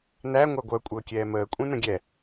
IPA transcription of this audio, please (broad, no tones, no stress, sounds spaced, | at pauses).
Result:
n æ ŋʷ æ ɡʷ œ kʷʼ əː kʲ ɛː m əː kʷʼ ẽ n ə̃ ɡʲ ɛ